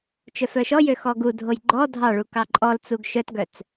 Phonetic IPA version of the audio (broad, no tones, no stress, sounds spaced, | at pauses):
t͡ʃ œ f œ ʃ ɔ j ø x ɔ ɡ u dʱ o j ɡ͡ǃ ɔ dʱ ɑ ɭ u k ɑ ǃʼ ɔ l t͡s u ɡ ʃ œ t ɡ œ t͡s